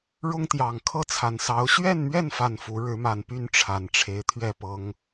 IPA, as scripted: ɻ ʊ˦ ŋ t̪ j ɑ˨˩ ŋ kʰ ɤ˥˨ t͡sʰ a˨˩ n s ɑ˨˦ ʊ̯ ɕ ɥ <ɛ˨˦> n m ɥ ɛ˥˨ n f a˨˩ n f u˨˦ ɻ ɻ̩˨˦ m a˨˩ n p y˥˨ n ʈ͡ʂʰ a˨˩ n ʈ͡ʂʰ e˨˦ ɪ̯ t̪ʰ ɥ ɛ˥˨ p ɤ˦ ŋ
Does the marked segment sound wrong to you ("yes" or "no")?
yes